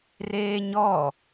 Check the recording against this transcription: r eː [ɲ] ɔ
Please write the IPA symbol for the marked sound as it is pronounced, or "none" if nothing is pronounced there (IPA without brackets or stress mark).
ɲ